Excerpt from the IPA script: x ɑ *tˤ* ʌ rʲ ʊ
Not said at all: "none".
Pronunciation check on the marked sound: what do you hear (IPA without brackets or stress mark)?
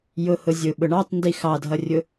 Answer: dʱ